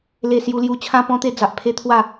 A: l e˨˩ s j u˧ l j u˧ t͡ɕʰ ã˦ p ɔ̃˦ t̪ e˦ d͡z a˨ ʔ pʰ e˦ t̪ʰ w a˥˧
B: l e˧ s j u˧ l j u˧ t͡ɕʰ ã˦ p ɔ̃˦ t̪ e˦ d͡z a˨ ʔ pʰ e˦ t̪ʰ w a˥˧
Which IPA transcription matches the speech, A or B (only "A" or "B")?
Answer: B